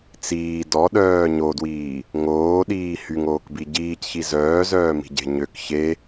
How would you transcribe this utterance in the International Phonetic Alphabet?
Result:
t͡s iː d ɔ ɗ œː ɲ o d w iː | ŋ oː ɗ iː h y ŋ oː k b i ɟ iː c ç i z œː z œː m i̤ ɟ e̤ ɲ ø k ç e

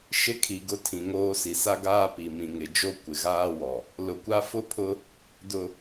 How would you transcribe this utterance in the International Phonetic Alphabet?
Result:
ʃ ɪ˦ kʰ i˨ ɡ ʊ˦ tʰ ĩ˨ ŋ oː˦ s i˨ s a˦ ɡ aː˦ p i˨ m ĩ˨ ŋ ɪ˨ d͡ʒ o˦ kʷ ɪ˨ ɣ aː˦ w ɔ˨ | l ʊ˨ kʷ a˦ f ʊ˦ pʰ ʊ˦ | d ʊ˨

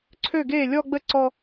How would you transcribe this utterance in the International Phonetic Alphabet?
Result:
ǀʰ ø˥˩ ɡ eː˥˩ lʲ ɔ˥˧ ɡ͡b ə˥˩ ǀ ɔ˥˧

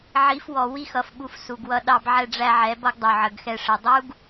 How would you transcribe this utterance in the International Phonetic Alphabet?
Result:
ʕ i˨˦ f w ɔ˨ w i˦ x ʌ˨ f ɓ u˧ f s u˨ ɡ w ʌ˧ ɗ ɑ˧ b ʕ ɛ˧ ɖ͡ʐ æ˧ ʕ ɛ˨˦ b ʌ˦ ɡ dˤ u˨ ʕ ə˨ ɡ x ɛ˧ ʂ ə˨ dˤ u˦ ɡ

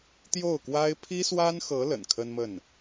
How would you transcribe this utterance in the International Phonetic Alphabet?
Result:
t̪ j o˥˩ ʊ̯ k w a˥ ɪ̯ pʰ i˥ s w a˥ n x ɤ˧˥ l ə̰˨˩ n kʰ ə˥ n m ə˥˩ n

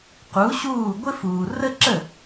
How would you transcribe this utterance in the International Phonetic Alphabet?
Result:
q u˩˥ ɕ uː˥˩ ɡʷ ɪ˥ f uː˩ r ə˥ ǁ ə˥˩

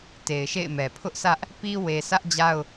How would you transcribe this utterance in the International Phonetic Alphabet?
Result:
t e˨ ɪ̯ ʃ ḛ˦˨ ɪ̯ m ɛ˨ pʰ ʊ˦ ʔ sʰ ä˦ ʔ | p i˦ w e˨ sʰ ä˦ ʔ d͡ʑ a˦ ʊ̯

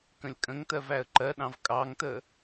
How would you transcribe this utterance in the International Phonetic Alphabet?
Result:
k ə̃ lʲ kʼ ə̃ ŋ t ɜ v æ ə̯ ǃ ɜ ɗ ɑ̃ v kʼ ɑ ŋ t ə

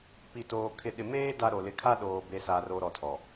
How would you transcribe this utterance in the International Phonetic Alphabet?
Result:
p i˨ t oː˨ kʰ ɪ˨ ɗ ɪ˨ m eː˦ d a˦ ɾ o˨ l ɪ˨ kʰ a˦ ɗ oː˨ b e˨ s a˨ r o˨ ɾ ɔ˨ tʰ ɔ˨

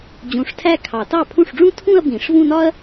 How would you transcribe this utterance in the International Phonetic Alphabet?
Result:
d͡ʑ ũ˨˩˦ ʂ tʰ æ˥˧ kʰ ɑ˨˩˦ t ɑ˥˩ pʰ ũ˥˩ ʂ ɖ͡ʐ ũ˥ tʰ ũ˥˧ ɐ̯ b ĩ˨˩˦ ʂ v ũ˥˧ n ɒ˥ ɐ̯

